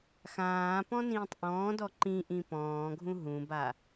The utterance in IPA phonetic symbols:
xãːpɔ̃nĩːtˤ ʔɔ̃ːdɔ ǃĩʔĩ pɔ̃ːɡʱũ ɦũba

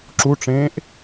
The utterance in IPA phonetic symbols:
ǁuʈ͡ʂẽːʔ

